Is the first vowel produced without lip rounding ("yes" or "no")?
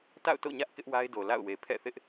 yes